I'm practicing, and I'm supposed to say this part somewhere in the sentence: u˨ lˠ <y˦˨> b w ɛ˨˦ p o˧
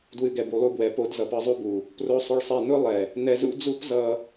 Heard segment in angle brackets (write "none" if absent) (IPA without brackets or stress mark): u˦˨